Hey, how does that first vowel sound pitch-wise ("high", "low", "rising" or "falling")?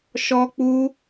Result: high